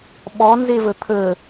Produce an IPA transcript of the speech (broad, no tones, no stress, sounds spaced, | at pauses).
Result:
ɓ ɔ n z e v ə t̪ʰ ə